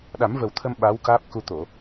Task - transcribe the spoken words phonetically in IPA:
ɗa˨˩˦mvə˨˩wt̪ʰə˧m ɓa˧˥wkaː˦˥p̚ku˧t̪o˨˩˨

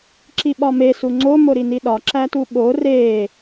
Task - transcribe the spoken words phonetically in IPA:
ǁiɓɒme suŋ͡ǀo moɾiniɗɒ ǁætuɓo re

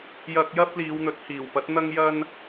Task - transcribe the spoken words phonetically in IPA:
jɐ˧k̚ jɐ˥p̚liː˨˧wn̪ɵ˨˥t̚ hiː˨˩wpɐ˨˥t̚ n̪ɐ˥ŋjɐ˥n

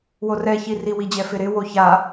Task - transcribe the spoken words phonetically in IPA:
worɛ çiri wid͡ʑɛfɪɾɪ woça

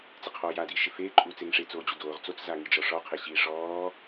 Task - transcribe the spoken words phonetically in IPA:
t͡sɪqʰɔːja diʃɪfeː ǃʼuːt͡seŋʂe t͡soːd͡ʑudoːʁ t͡sot͡s zaŋid͡ʒɔʂɔ qʰeɕiːʂɔː

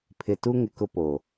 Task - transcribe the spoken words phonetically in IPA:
pʰɪ˨tu˦ ŋɪ˨kʊ˦ po˨

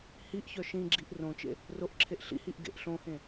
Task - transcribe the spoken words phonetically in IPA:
hiʔçœ ʃĩɡ͡ǁiʔ rõt͡ʃḛ | roʔǁʰeʔ ɬḭhiʔ ɡḛʔ ɬõhẽ

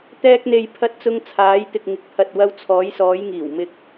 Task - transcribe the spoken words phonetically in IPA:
t̪ɛː˧k̚n̪e˨jpʰɐ˧t̚ t͡sʊ˧ŋt͡sʰaː˨˧jt̪ɪ˨k̚ ŋɪ˨k̚pʰɐ˨t̚wɐ˧wt͡sʰɔː˨˧j sɔː˨˧j ŋiː˨˩w mɪ˨k̚

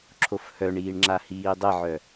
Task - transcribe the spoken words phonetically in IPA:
ǁʰofhœɳiːɳ ŋ͡ǁahiːdˤɘʕœ

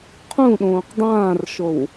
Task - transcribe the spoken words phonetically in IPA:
qʰũɗõːq dˤãːrʃow

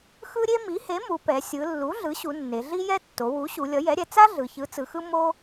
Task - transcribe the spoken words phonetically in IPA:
xɯ˦ ɾʲe˦mi˩˥he˩˥ mu˩˧pɛ˩˧ sʲɯ˩˧ lːu˩˥ɮɯ˩˥ɕu˩˧ nːe˩˧ ɮi˦jɛ˦ tːo˩˧wu˩˥ ɕu˩˧lʲʌ˩˥jɛ˩˥ɾʲɛ˩˧ t͡sa˦ ɮɯ˩˧çɯ˩˥t͡sɯ˩˧xɯ˦ mo˦

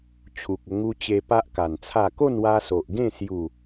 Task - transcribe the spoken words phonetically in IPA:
t͡ɕʰu˨k̚ə˧ ŋu˧t͡ɕe˧ pa˦ʔka˨˩nt͡sʰa˥˧ ko˥˧nwa˧so˨ʔɡẽ˥˧ sju˥˧

